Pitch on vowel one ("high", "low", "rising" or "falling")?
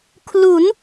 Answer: rising